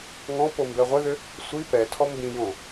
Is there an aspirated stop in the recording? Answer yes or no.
yes